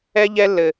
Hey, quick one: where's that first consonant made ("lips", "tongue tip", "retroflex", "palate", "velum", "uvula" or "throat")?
palate